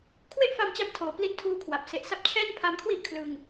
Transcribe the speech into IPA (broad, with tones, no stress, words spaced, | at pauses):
kʰwe˥˩ʔfa˧m t͡ɕa˦˥mtʰoː˨˩ pli˦˥ntʰuː˧kʰwa˨˩p̚ se˨˩ʔsa˦˥p̚ t͡ɕʰɛː˥˩npʰa˧mkʰwi˥˩ʔ kʰlɯ˧ŋ